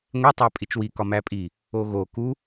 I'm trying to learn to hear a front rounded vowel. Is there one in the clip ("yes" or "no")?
no